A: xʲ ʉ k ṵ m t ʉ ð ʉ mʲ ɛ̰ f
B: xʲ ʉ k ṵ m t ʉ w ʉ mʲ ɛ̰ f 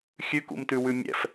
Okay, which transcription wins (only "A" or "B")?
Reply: B